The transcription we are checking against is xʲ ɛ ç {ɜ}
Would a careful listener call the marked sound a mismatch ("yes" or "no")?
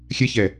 yes